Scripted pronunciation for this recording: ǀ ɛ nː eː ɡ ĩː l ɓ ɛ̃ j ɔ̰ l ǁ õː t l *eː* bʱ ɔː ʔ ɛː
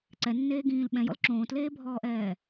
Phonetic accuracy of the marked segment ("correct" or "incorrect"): correct